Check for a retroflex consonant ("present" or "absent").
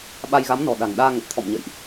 absent